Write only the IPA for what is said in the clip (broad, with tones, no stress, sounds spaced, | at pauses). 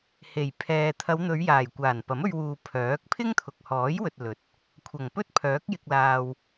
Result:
h e˨˩ j pʰ ɛː˨ t̪ʰ ɐ˨˧ w n̪ ɵ˨˧ ɥ j aː˨˩ j kʷ aː˨˩ n p ɐ˨˥ m ɵ˧ ɥ w uː˨ pʰ œː˨˥ k̚ pʰ ɪ˥ ŋ t̪ʰ ʊ˨ k̚ h ɔː˨˥ j w ɵ˨ t̚ l ɵ˨˥ t̚ | kʷʰ ɐ˨˩ ŋ p ɵ˥ t̚ pʰ œː˨˥ k̚ j ɪ˨ k̚ l aː˨ w